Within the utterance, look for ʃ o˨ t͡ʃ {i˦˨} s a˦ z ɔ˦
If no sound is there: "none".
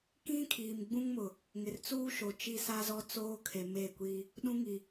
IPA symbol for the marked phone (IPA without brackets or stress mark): i˦